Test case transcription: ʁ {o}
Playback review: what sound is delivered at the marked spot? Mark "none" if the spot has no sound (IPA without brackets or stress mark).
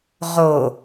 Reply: o